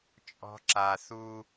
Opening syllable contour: high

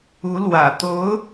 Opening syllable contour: rising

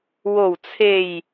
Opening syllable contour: low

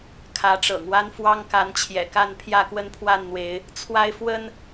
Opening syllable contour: rising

